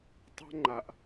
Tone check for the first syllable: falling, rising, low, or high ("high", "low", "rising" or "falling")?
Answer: high